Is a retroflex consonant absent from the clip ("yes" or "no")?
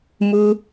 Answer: yes